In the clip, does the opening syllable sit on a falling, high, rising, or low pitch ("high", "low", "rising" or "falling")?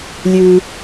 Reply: low